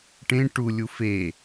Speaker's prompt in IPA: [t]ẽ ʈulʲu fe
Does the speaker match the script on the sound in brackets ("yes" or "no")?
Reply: no